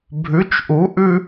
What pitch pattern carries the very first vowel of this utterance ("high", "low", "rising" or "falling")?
rising